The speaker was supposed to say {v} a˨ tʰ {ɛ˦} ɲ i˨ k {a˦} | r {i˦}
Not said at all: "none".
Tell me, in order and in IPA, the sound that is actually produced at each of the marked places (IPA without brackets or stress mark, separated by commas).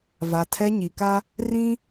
v, ɛ˦, a˦, ĩ˦